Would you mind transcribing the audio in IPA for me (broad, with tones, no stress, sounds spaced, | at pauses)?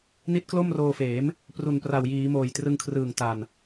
n i˦˥ t̚ k l o˥˩ m r oː˧ f eː˩˦ m | p r u˨˩ n p r a˨˩ w j iː˩˦ m oː˨˩ j t r ɯ˧ ŋ kʰ r ɯː˨˩ ŋ t a˨˩ n